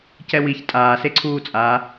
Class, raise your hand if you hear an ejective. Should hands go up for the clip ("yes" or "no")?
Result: yes